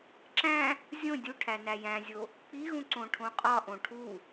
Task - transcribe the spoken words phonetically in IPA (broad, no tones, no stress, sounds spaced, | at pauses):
ǁ æ̃ | zʲ õ dʲ u ʈʰ æ n æ j æ̃ zʲ o | k͡p i ɣ ũ ǀ õ ʈʰ õ qʼ ɒ ʔ õ ʈʰ u